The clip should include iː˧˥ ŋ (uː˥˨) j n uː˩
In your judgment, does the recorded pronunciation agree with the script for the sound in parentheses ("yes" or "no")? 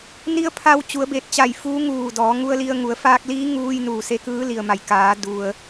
no